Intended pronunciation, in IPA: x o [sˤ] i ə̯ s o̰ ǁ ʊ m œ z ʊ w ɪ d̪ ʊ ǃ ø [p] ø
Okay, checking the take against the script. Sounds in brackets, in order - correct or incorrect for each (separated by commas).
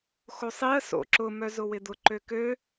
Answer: correct, incorrect